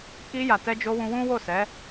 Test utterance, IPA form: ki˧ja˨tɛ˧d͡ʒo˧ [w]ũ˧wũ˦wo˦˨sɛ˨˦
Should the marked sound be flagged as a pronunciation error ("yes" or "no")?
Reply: no